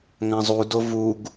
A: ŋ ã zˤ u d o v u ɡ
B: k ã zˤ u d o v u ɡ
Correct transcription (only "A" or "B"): A